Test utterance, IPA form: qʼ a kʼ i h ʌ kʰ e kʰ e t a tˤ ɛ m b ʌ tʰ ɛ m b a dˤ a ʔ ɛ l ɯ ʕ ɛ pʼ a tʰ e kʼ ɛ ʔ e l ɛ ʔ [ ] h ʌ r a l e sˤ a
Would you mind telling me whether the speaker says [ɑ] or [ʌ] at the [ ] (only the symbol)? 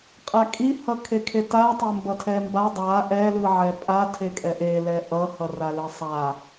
ʌ